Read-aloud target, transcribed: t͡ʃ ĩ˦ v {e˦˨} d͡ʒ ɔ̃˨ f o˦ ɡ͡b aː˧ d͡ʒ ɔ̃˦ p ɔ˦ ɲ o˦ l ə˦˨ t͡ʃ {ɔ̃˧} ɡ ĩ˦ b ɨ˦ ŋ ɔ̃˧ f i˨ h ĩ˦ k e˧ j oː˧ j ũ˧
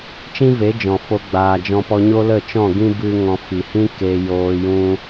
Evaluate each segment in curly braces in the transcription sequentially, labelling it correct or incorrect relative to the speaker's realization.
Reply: incorrect: e˨˦, incorrect: ɔ̃˦˨

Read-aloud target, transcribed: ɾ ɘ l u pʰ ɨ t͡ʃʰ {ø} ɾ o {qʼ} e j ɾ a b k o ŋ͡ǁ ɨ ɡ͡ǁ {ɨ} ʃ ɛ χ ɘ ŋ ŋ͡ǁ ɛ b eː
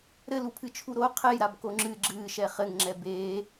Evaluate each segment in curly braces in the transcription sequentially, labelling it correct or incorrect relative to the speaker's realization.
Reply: incorrect: u, incorrect: qʰ, incorrect: ɨː

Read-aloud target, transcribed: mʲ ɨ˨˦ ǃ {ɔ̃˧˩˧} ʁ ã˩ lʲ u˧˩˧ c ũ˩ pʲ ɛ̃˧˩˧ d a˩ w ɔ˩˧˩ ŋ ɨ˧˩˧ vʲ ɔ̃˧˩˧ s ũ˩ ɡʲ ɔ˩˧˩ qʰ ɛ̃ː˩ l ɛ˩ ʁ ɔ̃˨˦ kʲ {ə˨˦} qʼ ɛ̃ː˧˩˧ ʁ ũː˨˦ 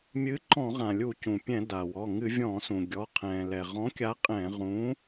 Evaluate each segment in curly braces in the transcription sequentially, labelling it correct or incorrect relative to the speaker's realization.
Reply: correct, incorrect: a˨˦

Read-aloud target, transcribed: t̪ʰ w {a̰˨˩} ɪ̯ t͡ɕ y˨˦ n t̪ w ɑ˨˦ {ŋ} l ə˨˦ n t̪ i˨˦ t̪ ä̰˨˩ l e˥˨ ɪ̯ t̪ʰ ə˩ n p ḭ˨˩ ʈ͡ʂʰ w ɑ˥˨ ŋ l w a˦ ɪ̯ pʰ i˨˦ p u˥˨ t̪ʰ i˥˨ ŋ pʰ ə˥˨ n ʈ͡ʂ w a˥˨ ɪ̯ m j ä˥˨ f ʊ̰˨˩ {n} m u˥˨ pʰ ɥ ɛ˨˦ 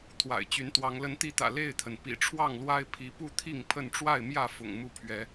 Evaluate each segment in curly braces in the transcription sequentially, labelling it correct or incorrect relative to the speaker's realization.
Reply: correct, correct, incorrect: ŋ

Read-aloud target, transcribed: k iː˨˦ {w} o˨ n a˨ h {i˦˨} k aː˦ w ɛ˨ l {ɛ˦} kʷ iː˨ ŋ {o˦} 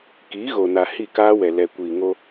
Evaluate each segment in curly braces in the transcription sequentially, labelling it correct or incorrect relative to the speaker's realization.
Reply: incorrect: ɣ, correct, incorrect: ɛ˨, correct

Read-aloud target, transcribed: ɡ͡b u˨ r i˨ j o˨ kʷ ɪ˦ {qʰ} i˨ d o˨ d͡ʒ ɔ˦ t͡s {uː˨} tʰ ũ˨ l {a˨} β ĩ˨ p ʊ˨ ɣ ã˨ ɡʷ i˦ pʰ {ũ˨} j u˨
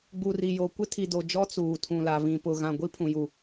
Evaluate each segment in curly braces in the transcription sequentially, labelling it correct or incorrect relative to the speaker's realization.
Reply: incorrect: tʰ, correct, correct, correct

